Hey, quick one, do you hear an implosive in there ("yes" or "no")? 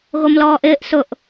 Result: no